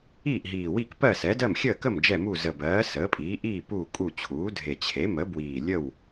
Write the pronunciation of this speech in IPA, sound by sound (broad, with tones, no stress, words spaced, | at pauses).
iː˥˨ʔɦiː˨˩wi˥˨k pɜ˥˨sɛ˩˥d ɜ˥˨mxʲəː˥˨kə˥˨m d͡ʒɛ˥˨mu˥˨ zə˨˩bɜː˩˥ səː˩˥pʼiː˩˥ ʔiː˥˨ puː˥˨kʼu˥˨ t͡ɕʰuː˩˥dʱe˨˩ t͡ɕʰe˩˥mə˩˥ bwiː˨˩lʲə˥˨w